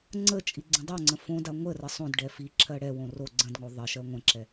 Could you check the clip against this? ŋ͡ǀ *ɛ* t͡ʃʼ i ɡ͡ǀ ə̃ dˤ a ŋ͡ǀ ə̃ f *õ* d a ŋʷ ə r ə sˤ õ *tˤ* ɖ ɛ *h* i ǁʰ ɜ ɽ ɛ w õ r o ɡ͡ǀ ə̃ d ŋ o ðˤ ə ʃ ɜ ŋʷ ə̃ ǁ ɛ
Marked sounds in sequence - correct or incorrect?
incorrect: ə, correct, incorrect: d, incorrect: f

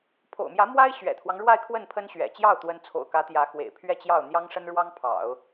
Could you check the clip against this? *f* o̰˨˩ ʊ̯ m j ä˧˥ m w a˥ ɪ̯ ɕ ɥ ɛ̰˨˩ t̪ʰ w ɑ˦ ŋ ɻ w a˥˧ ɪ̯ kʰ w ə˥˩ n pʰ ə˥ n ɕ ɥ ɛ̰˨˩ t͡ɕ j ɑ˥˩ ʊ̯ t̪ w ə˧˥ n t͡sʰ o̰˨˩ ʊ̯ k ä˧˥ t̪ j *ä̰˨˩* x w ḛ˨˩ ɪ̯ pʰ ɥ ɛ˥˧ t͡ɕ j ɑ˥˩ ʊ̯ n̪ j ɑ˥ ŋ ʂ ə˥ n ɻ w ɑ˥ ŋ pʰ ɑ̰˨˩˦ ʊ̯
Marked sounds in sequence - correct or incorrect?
incorrect: pʰ, incorrect: ä˧˥

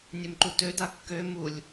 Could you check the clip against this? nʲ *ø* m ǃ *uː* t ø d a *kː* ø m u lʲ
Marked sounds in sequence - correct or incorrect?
correct, incorrect: u, correct

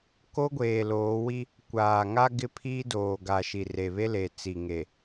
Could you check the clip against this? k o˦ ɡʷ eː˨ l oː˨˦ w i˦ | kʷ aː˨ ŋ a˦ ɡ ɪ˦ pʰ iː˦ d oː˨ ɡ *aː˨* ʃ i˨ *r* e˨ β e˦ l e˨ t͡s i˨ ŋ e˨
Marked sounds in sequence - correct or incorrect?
incorrect: a˨, correct

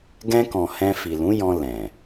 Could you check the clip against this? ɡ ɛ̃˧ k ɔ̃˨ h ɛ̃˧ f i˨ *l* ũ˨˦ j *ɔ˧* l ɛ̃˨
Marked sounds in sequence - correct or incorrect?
correct, incorrect: ɔ̃˧

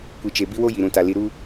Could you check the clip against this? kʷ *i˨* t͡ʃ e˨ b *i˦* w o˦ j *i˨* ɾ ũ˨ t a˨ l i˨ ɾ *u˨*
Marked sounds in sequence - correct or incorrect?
correct, correct, correct, incorrect: u˦

